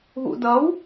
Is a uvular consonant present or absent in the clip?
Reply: absent